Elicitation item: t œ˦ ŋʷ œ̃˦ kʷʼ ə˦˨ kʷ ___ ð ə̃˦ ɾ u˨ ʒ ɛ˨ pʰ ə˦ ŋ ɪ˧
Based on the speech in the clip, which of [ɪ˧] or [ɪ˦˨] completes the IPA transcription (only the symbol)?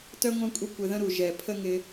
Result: ɪ˧